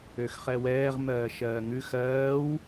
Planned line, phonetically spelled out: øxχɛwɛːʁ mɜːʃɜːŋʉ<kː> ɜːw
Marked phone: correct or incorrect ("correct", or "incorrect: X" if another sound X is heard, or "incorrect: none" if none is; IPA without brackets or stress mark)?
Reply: incorrect: x